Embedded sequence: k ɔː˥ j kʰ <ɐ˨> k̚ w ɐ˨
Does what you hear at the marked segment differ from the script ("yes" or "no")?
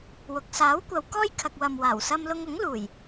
no